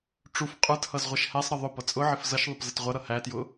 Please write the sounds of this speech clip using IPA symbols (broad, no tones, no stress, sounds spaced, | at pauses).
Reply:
ʈ͡ʂ u f qʼ ə˞ t h ʌ z ʁʷ ʌ ʃ h æ sˤ ɾ ə ðˤ ʊ p ʌ t͡sʼ ʊ ʕ ɪ f z ʌ ʃ ðˤ ə p z ə t ʁʷ ʌ ɾ ʌ h æ t j ʊ